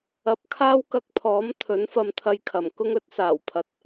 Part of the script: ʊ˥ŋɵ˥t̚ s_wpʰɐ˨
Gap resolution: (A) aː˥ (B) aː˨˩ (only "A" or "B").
B